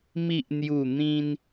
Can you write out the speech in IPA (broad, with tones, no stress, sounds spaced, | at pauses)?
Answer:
m i˨ ʔ n̪ j u˨˩ n̪ ĩ˧ n